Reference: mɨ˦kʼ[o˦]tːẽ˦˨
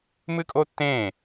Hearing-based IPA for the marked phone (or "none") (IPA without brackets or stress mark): o˦